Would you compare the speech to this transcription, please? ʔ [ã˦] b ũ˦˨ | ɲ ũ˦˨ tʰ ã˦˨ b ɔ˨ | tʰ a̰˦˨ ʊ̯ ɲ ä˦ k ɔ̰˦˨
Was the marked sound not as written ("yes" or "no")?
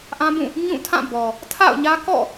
no